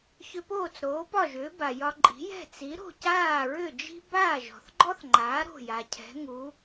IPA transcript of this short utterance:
çʏ˧poː˥˩t͡s ɾoː˩˥pɒ˥˩ʒʏː˩˥ba˩ jɒ˧ǃʼi̤˩˥ jɛ̤˥˩t͡si˩˥ ɾo̤˥˩caː˥˩ɹʏ˥˩d͡ʒi̤˥ baː˥˩ʒɔ̤˩θɡ͡ǃɔ˥θŋ͡ǃaː˩˥ ɾo̤˥˩ja˩cʰɛ̤˩˥ŋu˩˥

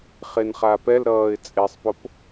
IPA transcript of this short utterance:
χenχapɛlɾʌːɪ̯ t͡sʼesˤpop

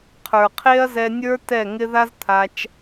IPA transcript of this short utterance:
qʰə˞˨ qʰe˦ɐ̯zɛ˧nʲə˞˦ tɛ˦˨ŋɪ˦ ða˦zt̪ʰa˧t͡ʃ

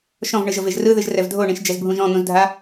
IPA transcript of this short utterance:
ʃɔ̃vɳɯʒɤveʒ rɯðɯʒrɛv dʱoɳĩʃd͡ʒɛzbʱũʒ ɔ̃n̪ũzdʱa

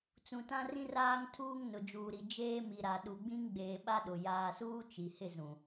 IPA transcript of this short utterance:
t͡sũ˨tã˦rĩ˦r aː˦ŋtʰuː˦ŋ nʊ˨d͡ʒuː˨ɾi˨ d͡ʒeː˦mi˨ɾa˨ ɗu˨ɡ͡bĩ˦ŋɡ͡beː˨ ɓa˦ɗʊ˨ jaː˨suː˦ t͡ʃi˨hɪ˦˨zũ˨

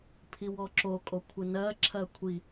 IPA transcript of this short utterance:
pʰiwɔǁo kʼokʷʰɪnɜ ǁʰɜkʷʰi

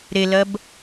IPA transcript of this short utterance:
ɾelɜb

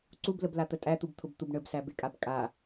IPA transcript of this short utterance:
ǀubləblat̪ə tʼæt̪ubt̪ʰʊbt̪ub ɳəbsæbekʼab kʼa

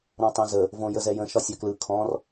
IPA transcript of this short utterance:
ɾɔ̃tˤõzə | võjəzɛjə̃ ʃɒsʲɐklɯ kʰɔ̃r

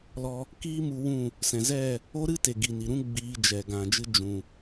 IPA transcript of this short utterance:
lɔ˧ | kiː˦mu˧ wũ˦˨ | sɛ̃˨zɛ˦˨ | o˦ɾɨ˦te˨ ɡi˨ni˨ɾũ˦ ɡ͡biː˧ d͡ʒɛ˨ ɡã˨d͡ʒɨ˧ d͡ʒũ˨

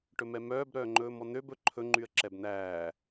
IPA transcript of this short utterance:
ʈɵmɛmœːb ɾœːŋ͡ǃɵːmɔn̪øb ɵ ǃʰɵ ŋ͡ǃyə̯ǁɛbn̪æː

